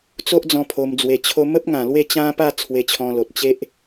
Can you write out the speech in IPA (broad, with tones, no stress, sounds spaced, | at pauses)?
t͡s o˦ ʔ d͡z ɔ̃˧ pʰ o˧ m d͡z w e˧ t͡ɕʰ o˧ m ə˦ p̚ ŋ ã˨˩ l w e˥˧ t͡ɕ ã˦ p a˥˧ t͡sʰ w e˧ t͡ɕʰ ɔ̃˧ l o˨ t̚ t͡ɕ e˦ ʔ